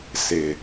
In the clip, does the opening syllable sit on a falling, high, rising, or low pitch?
low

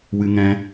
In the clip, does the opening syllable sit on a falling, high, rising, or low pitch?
high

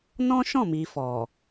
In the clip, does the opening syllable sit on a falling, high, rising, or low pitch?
high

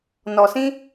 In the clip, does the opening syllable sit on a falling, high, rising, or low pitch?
low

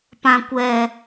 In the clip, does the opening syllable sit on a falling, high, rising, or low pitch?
low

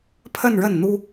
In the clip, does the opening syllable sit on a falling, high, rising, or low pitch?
falling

